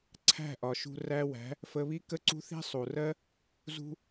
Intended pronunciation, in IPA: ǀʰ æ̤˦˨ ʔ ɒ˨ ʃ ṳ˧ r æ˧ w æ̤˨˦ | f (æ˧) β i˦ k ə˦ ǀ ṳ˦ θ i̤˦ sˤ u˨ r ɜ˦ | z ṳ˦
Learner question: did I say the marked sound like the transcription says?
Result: no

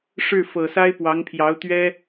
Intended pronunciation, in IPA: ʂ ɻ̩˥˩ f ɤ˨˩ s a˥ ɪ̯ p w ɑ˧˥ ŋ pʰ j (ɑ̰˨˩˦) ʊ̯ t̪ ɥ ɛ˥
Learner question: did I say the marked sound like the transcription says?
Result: no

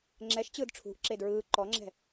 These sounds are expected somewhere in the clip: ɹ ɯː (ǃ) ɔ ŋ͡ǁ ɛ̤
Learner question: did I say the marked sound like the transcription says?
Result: yes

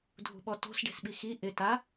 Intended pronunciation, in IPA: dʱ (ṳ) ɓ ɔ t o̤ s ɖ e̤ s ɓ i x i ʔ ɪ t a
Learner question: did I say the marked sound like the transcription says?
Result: yes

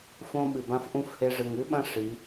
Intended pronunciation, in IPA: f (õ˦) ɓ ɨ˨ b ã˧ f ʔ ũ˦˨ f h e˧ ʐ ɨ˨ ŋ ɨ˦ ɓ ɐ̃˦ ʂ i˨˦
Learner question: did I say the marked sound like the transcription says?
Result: yes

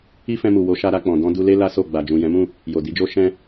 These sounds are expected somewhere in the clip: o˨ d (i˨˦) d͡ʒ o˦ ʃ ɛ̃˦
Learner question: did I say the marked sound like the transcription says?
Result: yes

